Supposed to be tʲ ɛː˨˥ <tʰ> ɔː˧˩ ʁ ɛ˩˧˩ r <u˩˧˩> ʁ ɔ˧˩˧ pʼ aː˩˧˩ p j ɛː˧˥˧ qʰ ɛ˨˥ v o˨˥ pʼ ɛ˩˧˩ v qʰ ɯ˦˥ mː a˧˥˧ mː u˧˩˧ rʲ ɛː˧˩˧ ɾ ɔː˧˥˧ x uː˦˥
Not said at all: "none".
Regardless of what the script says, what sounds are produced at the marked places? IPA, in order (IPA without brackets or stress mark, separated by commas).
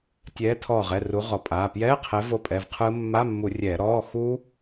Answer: tʰ, u˨˥